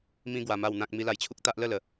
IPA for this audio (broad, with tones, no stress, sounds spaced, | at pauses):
m ĩ˧ ɡ w a˨˩ m a˨˩ w n̪ ã˨ k̚ m i˧ l a˧ j t͡ɕʰ u˦ k̚ t̪ a˦ ʔ l ə˥˧ l ə˨˩